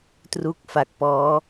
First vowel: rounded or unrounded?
rounded